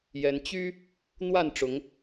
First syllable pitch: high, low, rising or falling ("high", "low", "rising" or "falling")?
rising